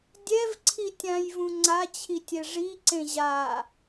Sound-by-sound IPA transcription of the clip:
dʲ ɛ v ǀʰ i tʲ ã j v ũ ŋ͡ǀ a t͡ɕʰ i tʲ ɛ ʐ i ǀ ẽ ʑ a

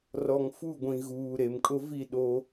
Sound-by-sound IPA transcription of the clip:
r ɔ˨ ŋ f u˦˨ ɡʷ ĩ˨ ɣ uː˨ ɾ e˨ m kʼ ʊ˦ v i˦˨ ɗ o˦

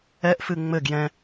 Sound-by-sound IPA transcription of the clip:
ɛ ʔ f ɨ ŋ͡m ɘ ɡ j ɛ̃

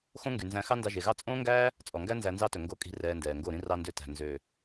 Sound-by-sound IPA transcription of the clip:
x õ˦ ŋ ɡ y˨ n z æ̃˧ x ɑ˦ n d ɑ˧ ʒ e˨ ɣ ɑ˦ t͡sʼ õː˦ ŋ ɡ æː˦ | t͡sʼ ɔ˨ ŋ ɡ æ˦ n z æ˧ n z ɑ˦ t ɵ˨ ŋ ɡ o˧ kʼ i̤˧ r ɛː˧ n d ɛː˨ ŋ ɡ o˦˨ ɾ ĩ˦ r ɑ˧ n d ø˧ t æ̤˨ n z ø˨

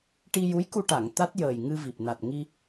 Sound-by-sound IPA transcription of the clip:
ʈ i˧ j u˧˥ j k u˧ ʈ a˨˩˨ ŋ t̪ a˦˥ t̚ j əː˨˩ j ŋ ɨ˧ v i˨˩ p̚ n a˨˩ t̚ ŋ i˧

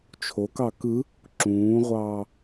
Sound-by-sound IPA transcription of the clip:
t͡ʃʰ o k ɑ k ɯ | ǁ ũː ʁʷ ɑː

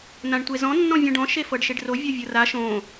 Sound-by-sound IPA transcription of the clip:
n̪ ã ɳ tʷ e z ɔ̃ nː ɔ̃ vʲ õ ɖ ɔ̃ ʃ e f ɤ ɖ ʃ e ɖ r o vʲ ɔ vʲ ɤ r a ʃ õ

